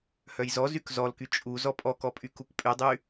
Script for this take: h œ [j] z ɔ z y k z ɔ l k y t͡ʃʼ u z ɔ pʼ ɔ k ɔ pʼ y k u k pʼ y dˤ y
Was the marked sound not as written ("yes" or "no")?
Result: no